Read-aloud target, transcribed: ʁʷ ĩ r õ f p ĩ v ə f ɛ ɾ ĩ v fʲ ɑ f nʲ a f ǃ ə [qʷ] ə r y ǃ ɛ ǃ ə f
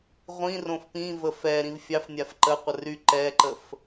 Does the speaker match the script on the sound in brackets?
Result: yes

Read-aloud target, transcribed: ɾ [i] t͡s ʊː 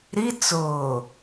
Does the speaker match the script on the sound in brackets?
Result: yes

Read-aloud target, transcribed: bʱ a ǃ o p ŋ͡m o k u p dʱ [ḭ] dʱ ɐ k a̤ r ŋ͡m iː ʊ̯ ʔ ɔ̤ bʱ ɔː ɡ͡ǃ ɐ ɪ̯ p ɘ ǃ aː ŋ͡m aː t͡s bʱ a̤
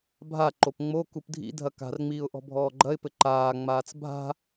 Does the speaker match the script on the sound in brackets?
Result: yes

